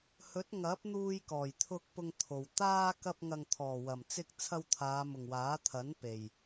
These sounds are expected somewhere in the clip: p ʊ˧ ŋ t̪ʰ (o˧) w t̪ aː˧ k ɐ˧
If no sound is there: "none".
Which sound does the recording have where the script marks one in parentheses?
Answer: o˨˩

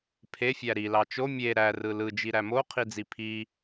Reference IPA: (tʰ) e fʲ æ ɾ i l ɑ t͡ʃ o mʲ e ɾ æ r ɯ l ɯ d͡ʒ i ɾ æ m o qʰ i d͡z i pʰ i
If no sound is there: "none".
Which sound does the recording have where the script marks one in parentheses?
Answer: pʰ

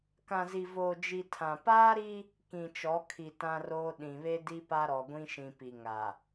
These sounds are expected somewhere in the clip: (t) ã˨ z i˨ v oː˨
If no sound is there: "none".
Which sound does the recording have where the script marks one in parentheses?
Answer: k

